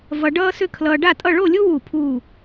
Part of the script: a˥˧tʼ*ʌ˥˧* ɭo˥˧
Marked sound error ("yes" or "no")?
no